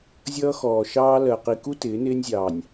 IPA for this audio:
zʲ ʌː˦ x ɔː˨ ʃ ɑː˦ l ɜ˨ q i˨ k u˦ t ɪː˨˦ n ɪː˦ nʲ zʲ ɑː˨ nʲ

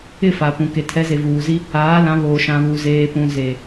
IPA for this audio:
ɪ˦˨ f a˨ p ũ˨ k e˨ tʰ ɛ˨˦ z e˨ v uː˨ z i˦ | aː˨˦ l ã˨˦ β oː˨ ʃ ã˨ β uː˨ z eː˨ p ũ˨ z e˨

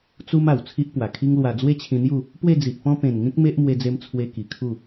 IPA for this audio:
t͡s u˦ m a˨˩ w t͡sʰ i˦ ʔ p w a˨˩ kʰ i˦ ŋ l w a˧ d͡z w e˦ t͡ɕʰ ĩ˧ n̪ j u˥˧ | p w e˥˧ d͡z i˨ ʔ p ɔ̃˦ p ẽ˨˩ n ŋ ĩ˦ k̚ m e˦ ʔ m w e˧ d͡z e˧ m t͡sʰ w e˧ k i˨˩ kʰ u˥˧

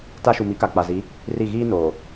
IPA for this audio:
t a˦ ʃ u˨ m i˨˦ k a˨ k͡p a˨ z i˨˦ | r i˦˨ ɣ iː˦ n oː˨

